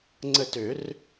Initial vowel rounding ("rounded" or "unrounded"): unrounded